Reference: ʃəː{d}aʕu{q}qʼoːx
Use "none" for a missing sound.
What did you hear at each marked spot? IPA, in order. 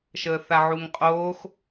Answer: θ, ŋ

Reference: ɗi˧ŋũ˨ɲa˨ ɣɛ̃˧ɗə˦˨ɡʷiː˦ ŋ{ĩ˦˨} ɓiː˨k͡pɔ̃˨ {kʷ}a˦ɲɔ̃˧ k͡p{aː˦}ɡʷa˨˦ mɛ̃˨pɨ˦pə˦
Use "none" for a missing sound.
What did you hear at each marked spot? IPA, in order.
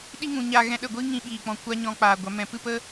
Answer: ĩ˧, kʷ, aː˨

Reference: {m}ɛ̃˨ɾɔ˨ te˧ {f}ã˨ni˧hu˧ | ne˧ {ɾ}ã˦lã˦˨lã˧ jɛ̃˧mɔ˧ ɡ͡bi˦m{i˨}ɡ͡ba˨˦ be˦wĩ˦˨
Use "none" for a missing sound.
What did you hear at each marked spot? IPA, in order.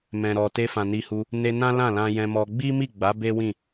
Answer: m, f, n, i˦˨

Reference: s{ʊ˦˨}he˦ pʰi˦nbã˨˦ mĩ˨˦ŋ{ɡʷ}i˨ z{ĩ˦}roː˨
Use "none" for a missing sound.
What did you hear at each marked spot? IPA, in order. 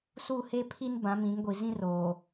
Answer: u˦˨, ɡʷ, ĩ˦

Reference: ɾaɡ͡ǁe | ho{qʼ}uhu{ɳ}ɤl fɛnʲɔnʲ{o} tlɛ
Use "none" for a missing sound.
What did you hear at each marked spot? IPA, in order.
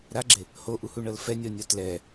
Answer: ʔ, ɳ, ɔ

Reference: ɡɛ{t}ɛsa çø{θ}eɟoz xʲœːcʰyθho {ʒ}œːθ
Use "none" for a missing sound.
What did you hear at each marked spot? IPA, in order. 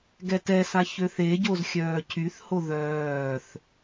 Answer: t, θ, ð

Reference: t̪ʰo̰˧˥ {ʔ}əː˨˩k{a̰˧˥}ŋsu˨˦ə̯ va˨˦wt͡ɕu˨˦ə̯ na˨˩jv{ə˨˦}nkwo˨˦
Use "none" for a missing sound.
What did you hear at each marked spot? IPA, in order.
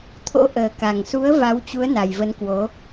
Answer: ʔ, a˨˩, ə˨˦

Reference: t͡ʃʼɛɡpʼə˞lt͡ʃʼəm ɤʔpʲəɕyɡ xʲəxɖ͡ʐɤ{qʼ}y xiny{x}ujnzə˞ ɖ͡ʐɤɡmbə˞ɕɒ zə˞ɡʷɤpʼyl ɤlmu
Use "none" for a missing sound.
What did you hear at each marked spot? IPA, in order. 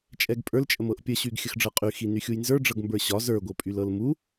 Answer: qʼ, xʲ

